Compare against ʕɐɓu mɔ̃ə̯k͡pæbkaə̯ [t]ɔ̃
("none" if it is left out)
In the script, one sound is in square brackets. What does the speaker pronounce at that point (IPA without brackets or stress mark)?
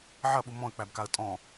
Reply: tʼ